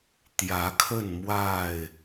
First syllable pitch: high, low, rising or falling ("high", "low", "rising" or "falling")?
rising